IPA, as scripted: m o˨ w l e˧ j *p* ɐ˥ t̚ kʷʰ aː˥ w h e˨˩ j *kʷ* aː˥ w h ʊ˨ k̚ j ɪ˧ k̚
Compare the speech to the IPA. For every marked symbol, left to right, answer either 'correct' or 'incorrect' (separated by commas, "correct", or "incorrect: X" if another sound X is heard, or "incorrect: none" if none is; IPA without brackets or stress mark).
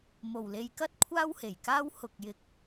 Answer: incorrect: k, incorrect: k